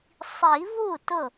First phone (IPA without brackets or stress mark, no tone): sˤ